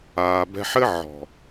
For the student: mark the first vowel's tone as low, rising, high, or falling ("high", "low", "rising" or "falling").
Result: low